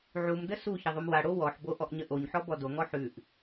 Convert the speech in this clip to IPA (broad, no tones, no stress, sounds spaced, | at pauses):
ʕ u m d ə s u ç ə ðˤ u m w a ɽ o w ɔ ħ b o ʔ ɔ ʔ ɲ ə ʔ o ɲ ħ ɔ b ɔ d o ŋ ɔ ħ ʉ ʔ